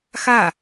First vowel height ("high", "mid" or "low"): low